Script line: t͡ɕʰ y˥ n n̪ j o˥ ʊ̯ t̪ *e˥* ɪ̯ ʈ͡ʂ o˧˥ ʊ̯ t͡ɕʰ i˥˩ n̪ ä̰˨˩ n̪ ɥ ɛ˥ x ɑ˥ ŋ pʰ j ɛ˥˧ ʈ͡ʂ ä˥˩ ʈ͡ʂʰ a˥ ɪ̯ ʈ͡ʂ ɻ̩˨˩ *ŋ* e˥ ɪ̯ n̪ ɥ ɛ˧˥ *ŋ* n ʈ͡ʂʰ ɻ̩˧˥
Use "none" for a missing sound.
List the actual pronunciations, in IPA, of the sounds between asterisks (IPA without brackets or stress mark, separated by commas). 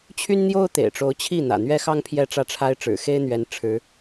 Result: ḛ˨˩, x, none